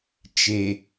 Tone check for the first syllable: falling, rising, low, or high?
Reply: low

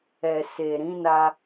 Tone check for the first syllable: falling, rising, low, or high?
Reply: low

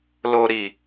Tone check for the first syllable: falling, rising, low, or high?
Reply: low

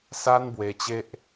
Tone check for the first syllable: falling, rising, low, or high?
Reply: high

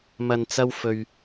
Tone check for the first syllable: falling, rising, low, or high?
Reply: low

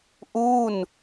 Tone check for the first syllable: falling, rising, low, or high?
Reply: falling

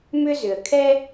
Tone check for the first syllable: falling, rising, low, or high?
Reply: high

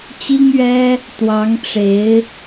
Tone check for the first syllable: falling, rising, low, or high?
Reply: high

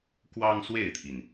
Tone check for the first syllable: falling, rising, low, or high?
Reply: high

